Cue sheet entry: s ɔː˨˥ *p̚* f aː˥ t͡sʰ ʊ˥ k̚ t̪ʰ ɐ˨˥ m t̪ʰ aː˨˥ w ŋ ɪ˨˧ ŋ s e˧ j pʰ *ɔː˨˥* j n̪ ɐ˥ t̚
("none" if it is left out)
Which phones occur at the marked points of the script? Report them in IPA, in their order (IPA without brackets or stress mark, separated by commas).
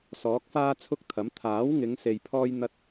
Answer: k̚, ɔː˥